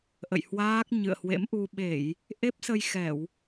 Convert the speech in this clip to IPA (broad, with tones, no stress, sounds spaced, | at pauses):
ʔ ə̰˧˨ j h w aː˦˥ k̚ ɲ ɨ̰˧˨ ə̯ h w ḛ˧˥ m ʔ u˧ ɓ e˧˩˨ j | ʔ e˦˥ p̚ s ə˧ j x ɛ˧˩˨ w